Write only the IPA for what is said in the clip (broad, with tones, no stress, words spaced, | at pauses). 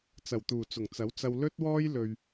t͡sɐ˨˩wt̪uː˨˩t͡sʊ˨˩ŋ t͡sɐ˨˥wt͡sɐ˧w lɵ˥t̚wɔː˥j lɵ˧ɥ